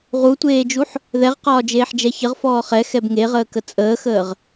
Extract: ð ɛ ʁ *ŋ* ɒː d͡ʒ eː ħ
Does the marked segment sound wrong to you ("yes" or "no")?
yes